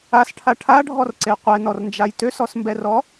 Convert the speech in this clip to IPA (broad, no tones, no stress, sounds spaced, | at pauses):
a s ʈʰ a ʈʰ a ɖʱ ɔ r ǀ e qʷ ɛ n ɔ r n d͡ʒ a j t ø s ɔ s m b ɛ r ɔ